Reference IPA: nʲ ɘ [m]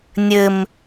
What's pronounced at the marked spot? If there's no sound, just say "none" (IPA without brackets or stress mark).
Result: m